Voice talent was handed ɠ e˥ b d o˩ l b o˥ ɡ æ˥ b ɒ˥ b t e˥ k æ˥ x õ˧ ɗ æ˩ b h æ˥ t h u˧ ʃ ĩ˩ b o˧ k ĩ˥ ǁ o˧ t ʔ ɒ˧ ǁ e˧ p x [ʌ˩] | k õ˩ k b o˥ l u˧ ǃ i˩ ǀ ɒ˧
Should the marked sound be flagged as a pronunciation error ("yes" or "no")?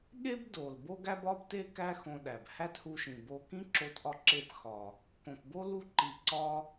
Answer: yes